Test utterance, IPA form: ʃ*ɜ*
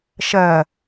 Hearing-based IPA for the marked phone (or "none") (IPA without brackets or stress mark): ɜ